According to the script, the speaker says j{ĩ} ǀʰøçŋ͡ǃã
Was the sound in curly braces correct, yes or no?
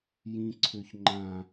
yes